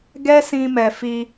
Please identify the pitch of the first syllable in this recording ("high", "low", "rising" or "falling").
high